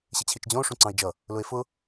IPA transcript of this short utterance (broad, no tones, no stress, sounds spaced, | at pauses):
ɕ ɪ t͡ɕʰ i t͡ʃ d͡ʑ ɔ̃ o̯ ʂ ũ ǀ ɑ̃ e̯ d͡ʒ ʌ | l ʊ e̯ f ʊ